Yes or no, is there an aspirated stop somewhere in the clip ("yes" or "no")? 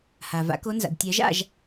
no